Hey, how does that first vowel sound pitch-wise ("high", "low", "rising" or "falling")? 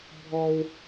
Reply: high